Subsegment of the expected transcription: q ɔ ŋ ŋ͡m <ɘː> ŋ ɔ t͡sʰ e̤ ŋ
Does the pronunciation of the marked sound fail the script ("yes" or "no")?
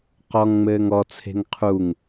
no